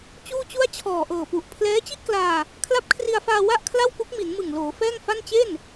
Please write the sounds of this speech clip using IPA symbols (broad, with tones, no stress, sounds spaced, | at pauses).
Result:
t͡ɕ uː˥˩ t͡ɕ u˥˩ a̯ t͡ɕʰ ɔː˨˩ ʔ ɤː˨˩ p u˨˩ ʔ pʰ l ɛː˦˥ t͡ɕ i˥˩ ʔ k l aː˧ | kʰ l a˦˥ p̚ kʰ r i˧ a̯ f aː˧ w a˥˩ ʔ kʰ l a˥˩ w k u˦˥ k̚ m i˩˦ n m ɯ˨˩ ŋ l oː˩˦ f ɛː˥˩ ŋ f a˥˩ n t͡ɕ e˥˩ n